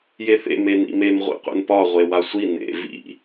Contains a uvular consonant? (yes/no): yes